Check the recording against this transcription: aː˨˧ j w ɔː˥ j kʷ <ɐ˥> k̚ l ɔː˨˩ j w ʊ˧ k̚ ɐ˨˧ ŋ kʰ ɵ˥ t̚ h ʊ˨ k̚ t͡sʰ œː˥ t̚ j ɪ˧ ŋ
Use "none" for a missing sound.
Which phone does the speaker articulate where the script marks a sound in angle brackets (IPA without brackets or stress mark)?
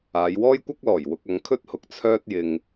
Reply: ɐ˥